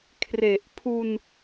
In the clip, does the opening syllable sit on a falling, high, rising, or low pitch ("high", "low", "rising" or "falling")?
low